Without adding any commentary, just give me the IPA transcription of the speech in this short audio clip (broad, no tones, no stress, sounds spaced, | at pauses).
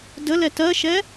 d ə l ɛ t ɜ ʃ ɛ